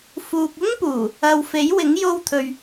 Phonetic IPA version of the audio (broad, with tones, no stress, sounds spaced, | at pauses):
f uː˨ k̚ ʊ˥ ŋ p uː˨˩ | ɐ˧ w f e˨˥ j w ɪ˨˥ ŋ j o˥ w t̪ʰ ɵ˧ ɥ